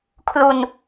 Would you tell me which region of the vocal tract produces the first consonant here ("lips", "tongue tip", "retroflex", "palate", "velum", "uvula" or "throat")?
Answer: velum